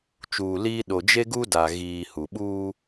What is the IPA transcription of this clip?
t͡ʃuː˨liː˦ ɗo˨d͡ʒe˦ɡu˦da˨ ɣiː˨hu˨ ɓuː˦

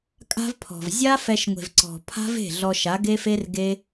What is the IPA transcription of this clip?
kʼa̤˦vpʰɔ̤˨v zʲa˦fɛ˧ʃŋʷe̤˨vǀɔ̤˨ pʰa̤˦v e̤˦˨ɮɔ˧ʃa˨˦ ɡe˦fe˦rɡe˦

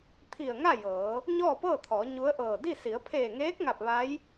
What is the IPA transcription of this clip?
t̪ʰi˧˩ə̯ ŋa˥˨ jɤː˩˧ | ɲɔː˥˨pɤː˥˨t̪ʰɔː˩˧ ɲu˧˥ə̯ʔɤː˧˩ di˥˨ si˩˧ə̯pʰeː˧˩ŋeː˧˥k̚ŋa˧˩p̚ ʋa˧˥j

